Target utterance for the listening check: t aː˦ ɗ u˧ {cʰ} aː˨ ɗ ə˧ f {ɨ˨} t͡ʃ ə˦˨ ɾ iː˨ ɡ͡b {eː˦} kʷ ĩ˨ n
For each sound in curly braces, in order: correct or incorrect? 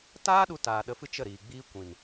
incorrect, incorrect, incorrect

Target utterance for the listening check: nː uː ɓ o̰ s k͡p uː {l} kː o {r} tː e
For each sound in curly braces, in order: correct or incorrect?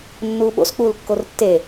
correct, correct

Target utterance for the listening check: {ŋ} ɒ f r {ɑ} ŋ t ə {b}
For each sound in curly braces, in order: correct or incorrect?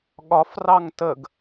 incorrect, correct, incorrect

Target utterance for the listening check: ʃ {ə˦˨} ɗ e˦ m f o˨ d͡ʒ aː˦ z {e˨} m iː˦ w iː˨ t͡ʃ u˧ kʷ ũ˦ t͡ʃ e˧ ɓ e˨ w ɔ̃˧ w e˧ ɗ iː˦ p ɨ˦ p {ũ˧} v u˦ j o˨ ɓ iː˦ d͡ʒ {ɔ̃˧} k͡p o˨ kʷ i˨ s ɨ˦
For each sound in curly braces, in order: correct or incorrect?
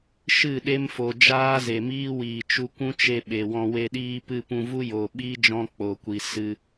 incorrect, correct, correct, correct

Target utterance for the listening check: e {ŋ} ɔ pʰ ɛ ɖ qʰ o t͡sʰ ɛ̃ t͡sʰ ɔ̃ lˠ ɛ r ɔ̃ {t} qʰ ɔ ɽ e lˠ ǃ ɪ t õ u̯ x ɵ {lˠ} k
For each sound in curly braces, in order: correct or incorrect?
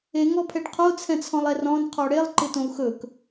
correct, incorrect, incorrect

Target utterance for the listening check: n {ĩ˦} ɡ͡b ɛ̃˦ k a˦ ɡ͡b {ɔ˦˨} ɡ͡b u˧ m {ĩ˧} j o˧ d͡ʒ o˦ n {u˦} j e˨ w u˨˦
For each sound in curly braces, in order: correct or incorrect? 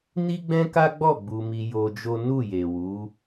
incorrect, correct, incorrect, incorrect

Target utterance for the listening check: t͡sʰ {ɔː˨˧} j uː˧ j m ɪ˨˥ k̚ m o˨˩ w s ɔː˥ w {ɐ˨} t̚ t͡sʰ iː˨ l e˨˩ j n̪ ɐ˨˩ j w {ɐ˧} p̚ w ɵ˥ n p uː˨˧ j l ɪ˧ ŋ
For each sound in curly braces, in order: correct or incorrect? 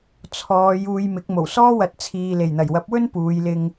correct, correct, incorrect

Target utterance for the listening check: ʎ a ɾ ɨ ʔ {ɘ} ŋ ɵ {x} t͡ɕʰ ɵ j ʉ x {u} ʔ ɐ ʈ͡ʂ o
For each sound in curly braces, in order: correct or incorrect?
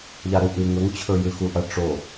incorrect, incorrect, correct

